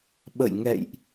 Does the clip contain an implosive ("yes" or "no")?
yes